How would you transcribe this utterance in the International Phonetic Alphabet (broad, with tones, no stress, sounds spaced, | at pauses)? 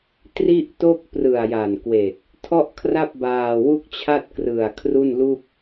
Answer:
t r i˥˩ ʔ t o˥˩ k̚ p r ɯ˨˩ a̯ j a˨˩ n k w e˨˩ k̚ | tʰ ɔ˥˩ ʔ kʰ r a˥˩ p̚ b aː˧ w u˥˩ k̚ t͡ɕʰ a˥˩ t̚ k r ɯ˨˩ a̯ kʰ r u˥˩ n l u˥˩ k̚